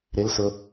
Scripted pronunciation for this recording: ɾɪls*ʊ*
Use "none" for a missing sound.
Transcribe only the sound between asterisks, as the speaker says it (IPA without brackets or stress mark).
ʊ